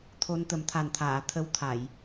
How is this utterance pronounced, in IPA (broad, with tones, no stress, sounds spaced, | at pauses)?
t̪ʰ o˧ n t̪ ə˨˩ m t̪ʰ a˨˩ n t̪ʰ aː˨˩˨ t̪ʰ ə˧˥ w t̪ʰ a˨˩˨ j